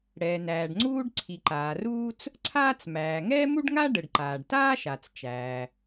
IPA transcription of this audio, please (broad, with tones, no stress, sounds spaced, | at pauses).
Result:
ɽ ɛː˩ n æː˩ ɖ ŋ͡ǀ uː˥ ɖ ǀʰ i˩ ǃ aː˩ r uː˥ t͡s | ǀʰ aː˥ t͡s m æː˩ ŋ ɛː˥ m u˥ ɖ ŋ a˥ ɖ ə˩ ɖ ǃ aː˩ ɖ t aː˥ ʃ a˩ t͡s t͡ʃ æː˩